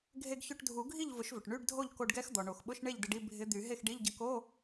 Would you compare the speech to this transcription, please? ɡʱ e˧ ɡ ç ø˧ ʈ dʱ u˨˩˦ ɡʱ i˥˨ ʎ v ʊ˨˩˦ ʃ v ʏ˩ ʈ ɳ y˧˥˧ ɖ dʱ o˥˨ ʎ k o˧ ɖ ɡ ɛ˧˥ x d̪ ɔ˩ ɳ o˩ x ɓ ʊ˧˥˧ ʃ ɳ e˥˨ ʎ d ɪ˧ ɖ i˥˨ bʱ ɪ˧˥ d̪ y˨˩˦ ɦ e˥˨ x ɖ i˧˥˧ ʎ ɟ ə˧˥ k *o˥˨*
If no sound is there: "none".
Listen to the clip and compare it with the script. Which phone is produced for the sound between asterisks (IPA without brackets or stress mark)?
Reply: o˧˥˧